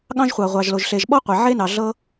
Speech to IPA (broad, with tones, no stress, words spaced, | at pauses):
ɠɑ̃˥ʒχʷɑ˩ʁʷɑ˩ʒlo˩ʒ ɬe˩ʒɓɔ˥ qʷe˩ʕe˥nɑ˩ ɮɤ˥